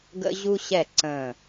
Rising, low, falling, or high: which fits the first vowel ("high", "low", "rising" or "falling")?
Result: high